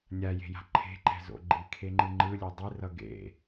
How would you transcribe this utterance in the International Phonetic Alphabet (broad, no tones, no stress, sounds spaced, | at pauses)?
nʲ a j e̤ j a̤ ǃʰ e̤ ǃ ɛ̤ z o̰ ɡ͡ǃ i kʰ e ŋ͡ǃ ɯ ŋ͡ǃ ɯ lʲ o dˤ i r ʌ ɡ ḛ